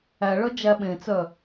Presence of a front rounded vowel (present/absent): present